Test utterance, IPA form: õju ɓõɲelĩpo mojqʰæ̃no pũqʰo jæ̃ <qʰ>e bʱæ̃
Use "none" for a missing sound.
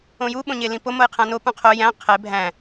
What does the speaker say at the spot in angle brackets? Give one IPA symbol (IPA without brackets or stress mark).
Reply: qʰ